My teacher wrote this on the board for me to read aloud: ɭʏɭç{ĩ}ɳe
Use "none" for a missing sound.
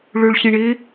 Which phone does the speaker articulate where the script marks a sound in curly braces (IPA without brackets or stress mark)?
ĩ